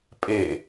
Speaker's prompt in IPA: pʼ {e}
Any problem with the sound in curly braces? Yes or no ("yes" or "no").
no